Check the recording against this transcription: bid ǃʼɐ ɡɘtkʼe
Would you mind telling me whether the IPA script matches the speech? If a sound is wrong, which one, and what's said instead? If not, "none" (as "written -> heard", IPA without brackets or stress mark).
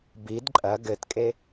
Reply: none